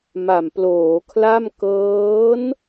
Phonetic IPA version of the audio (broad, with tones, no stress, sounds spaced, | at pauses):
m a˨˩ m p l oː˩˦ kʰ l a˥˩ m k ɤː˦˥ n